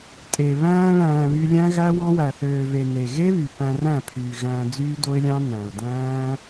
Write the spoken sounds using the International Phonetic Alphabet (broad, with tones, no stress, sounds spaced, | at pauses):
tʼ e˨ β æ̃ː˧ ɭ æ̃ː˨ β y˧ lʲ æ̃˦ ɣ æ˦ w ɑ̃˦ w æ˨ θ øː˨ v e˨ n e˨ ɣ e˦ β y˨ p æ̃˧ r æ̃˦˨ pʰ yː˨ ɣ æ̃ː˧ d͡z yː˦ d o˦ ɪ̯ lʲ ɑ̃˦ n æ̃˨ ʊ̯ d æ̃ː˦